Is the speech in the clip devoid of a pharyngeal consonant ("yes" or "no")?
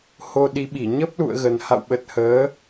yes